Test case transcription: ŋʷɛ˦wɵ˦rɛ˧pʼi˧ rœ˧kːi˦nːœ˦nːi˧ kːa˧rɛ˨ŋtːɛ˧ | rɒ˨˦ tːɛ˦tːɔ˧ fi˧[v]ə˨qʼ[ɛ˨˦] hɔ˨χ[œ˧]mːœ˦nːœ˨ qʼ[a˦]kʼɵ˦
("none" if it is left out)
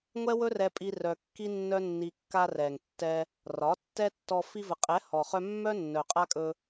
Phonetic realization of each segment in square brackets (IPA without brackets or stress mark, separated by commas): v, ɛ˨˦, œ˧, a˦